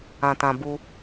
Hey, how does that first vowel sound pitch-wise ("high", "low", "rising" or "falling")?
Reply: low